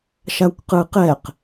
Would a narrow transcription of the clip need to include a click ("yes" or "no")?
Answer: no